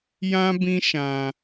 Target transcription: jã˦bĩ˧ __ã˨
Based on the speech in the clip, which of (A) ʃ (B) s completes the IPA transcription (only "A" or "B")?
A